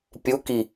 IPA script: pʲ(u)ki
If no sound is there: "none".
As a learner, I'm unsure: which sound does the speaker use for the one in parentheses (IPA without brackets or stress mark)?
u